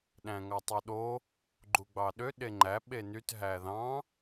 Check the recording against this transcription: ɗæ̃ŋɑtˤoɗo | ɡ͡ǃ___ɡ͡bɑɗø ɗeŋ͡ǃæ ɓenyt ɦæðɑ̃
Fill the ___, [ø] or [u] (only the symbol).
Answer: u